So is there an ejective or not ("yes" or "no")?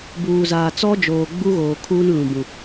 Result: no